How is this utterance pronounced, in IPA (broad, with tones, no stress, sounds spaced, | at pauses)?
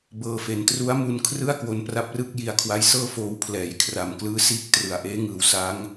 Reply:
b ɤː˧ f e˩˦ n t r u˦˥ a̯ m u˧ n kʰ r ɯ˥˩ a̯ k w o˧ n p r a˦˥ p̚ r ɯ˥˩ k̚ j i˧ a̯ kʰ w a˦˥ j s ɤː˥˩ f oː˧ w pʰ l ɛː˩˦ j kʰ r a˨˩ m k l ɯː˦˥ s iː˥˩ k̚ t r ɯ˨˩ a̯ ʔ eː˦˥ ŋ ɯː˩˦ w s a˦˥ ŋ